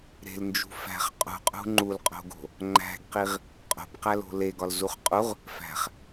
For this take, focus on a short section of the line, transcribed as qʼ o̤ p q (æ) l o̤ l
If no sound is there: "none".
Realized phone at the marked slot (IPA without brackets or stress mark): æ